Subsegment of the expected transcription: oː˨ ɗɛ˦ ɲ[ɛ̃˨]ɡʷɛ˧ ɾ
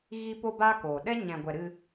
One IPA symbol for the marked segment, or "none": ɛ̃˧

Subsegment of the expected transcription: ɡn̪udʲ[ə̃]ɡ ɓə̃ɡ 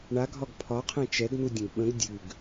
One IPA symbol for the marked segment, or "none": ə̃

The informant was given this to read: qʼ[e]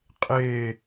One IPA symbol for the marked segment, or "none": e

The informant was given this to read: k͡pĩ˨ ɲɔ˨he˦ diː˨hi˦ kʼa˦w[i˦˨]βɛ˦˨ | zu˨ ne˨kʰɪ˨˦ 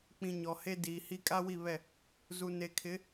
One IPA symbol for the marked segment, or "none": i˦˨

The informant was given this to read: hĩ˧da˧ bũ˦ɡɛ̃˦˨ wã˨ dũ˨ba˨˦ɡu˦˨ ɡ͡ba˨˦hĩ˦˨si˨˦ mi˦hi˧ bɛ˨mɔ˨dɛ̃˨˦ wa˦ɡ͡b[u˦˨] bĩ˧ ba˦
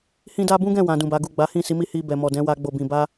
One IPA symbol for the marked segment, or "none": o˦˨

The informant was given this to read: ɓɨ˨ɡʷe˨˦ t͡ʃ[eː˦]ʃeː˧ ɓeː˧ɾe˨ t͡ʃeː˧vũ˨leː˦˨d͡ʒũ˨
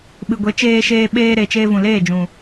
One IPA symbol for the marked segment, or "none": eː˧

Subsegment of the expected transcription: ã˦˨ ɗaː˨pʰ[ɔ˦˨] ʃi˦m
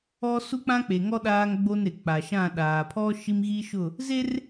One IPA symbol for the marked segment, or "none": ɔ˦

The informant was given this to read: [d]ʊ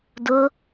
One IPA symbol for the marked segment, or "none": d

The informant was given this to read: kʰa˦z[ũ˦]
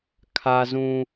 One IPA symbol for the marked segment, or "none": ũ˦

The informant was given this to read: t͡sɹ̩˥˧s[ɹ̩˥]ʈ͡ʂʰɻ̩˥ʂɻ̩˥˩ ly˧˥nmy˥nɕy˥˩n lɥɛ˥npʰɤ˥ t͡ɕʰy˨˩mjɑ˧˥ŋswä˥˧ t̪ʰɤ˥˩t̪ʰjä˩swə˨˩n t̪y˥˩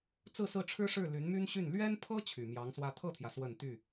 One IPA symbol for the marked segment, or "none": ɹ̩˥˩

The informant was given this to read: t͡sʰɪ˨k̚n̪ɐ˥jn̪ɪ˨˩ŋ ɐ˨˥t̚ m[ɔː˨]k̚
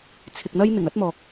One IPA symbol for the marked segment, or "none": ɔː˨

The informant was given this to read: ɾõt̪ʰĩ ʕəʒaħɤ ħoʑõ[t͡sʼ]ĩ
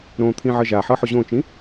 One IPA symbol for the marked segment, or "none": t͡ʃ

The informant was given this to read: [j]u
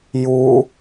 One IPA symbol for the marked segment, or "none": j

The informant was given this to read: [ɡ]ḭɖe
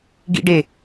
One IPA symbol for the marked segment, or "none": ɡ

